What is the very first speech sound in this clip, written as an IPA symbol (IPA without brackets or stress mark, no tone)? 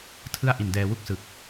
tʰ